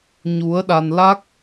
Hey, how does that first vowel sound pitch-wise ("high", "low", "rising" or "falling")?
rising